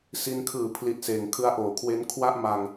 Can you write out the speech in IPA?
s i˧ n kʰ ɯː˨˩ pʰ l i˨˩ t̚ s eː˩˦ ŋ kʰ ɯ˦˥ a̯ ʔ oː˩˦ kʰ w e˦˥ n kʰ w a˥˩ ʔ m a˧ ŋ

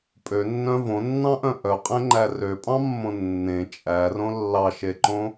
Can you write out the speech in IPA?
pʼ ø nː œ̃ v õ nː ɑ̃ ʔ œ̃ ʔ œ qʼ ẽ ŋ͡ǃ æ r ø pʼ ɑ̃ mː õ nː ẽ t͡ʃʼ æ r õ lː ɑ ʃ e ǃ õ

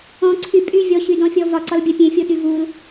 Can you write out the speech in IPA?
ɔ̃ ǀʰ y pʼ y vʲ ɔ ɕ y d ɔ̃ fʲ ɔ v ɒ ǀ ɒ l bʲ a pʲ ẽ fʲ o ɗ y v u l

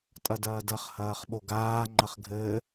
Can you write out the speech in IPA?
tʼ ɐ d ɐː d ɐ χ h ɐː χ ɓ o ɡ aː ŋ͡ǃ ɐ χ ɡʱ ɘː

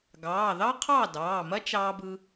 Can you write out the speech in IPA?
ɡ ɑː˩˧˩ ð ɑ˥ qʰ ɑː˥˩ d ɑː˩˧˩ m ɐ˥ t͡ʃ ɑː˧ b ɯ˧

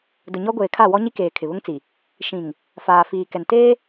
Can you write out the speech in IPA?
d ʊ˨ ɲ ɔ˦ ɡʷ eː˨ kʰ a˦˨ w ɔ˦ ɲ i˦ k eː˨ kʰ ɪ˨ β ʊ˦ ŋ t͡s i˨ | ʃ ĩ˨ ŋ | f aː˨ f iː˨ k ɛ˨ n t eː˦

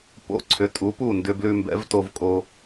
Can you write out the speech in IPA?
p o̰˧ ǀʰ ʏ˩˥ tʼ u˩˥ p u˥˩ n d ʏ˧ b l ʉ˧ m b ɛ̰˩˥ v t o˧ v kʼ o˧

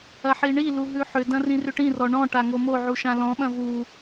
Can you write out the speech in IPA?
ɐ ħ i ɳ i l u ɦ ʉ ħ ʏ d ɐ̃ r ĩ r ʏ ʈ ĩ r ɔ ɳ ɔ̃ ʈ a ŋ o m o ʕ u ʃ ã l ɔ̃ ɓ ɐ̃ v u

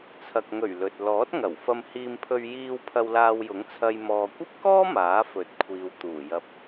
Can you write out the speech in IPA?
t͡sʰ ɐ˨ k̚ ŋ ɵ˨˩ ɥ l ɵ˨ t̚ l ɔː˨˥ t̚ ŋ ɐ˨˩ w f ɐ˧ m h iː˧ m pʰ ɵ˧ ɥ j iː˧ w pʰ ɐ˧ w l aː˧ w j ʊ˨˥ ŋ t͡sʰ ɐ˧ j m ɔː˨ kʷ ɐ˥ p̚ k ɔː˥ m aː˨˥ f ɵ˨˥ t̚ kʷʰ iː˨ w t̪ uː˨˩ j ɐ˧ p̚

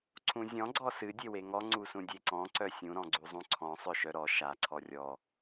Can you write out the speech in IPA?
ǀʰ ũ zʲ ɔ̃ ɡ͡ǀ ɔ s ɨ dʲ e w e ŋ ɔ ŋ͡ǀ u s ũ dʲ e ǀ ɔ̃ ǀ œ sʲ ũ ɾ ɔ̃ ɡ͡ǀ u zˤ ũ ǀʰ ɔ̃ sˤ œ ʃ œ ɾ ɔ ʃ a ǀʰ ɔ rʲ ɔ

